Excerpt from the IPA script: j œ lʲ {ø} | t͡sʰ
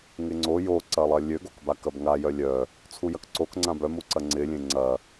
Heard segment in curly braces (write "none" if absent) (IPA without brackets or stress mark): œ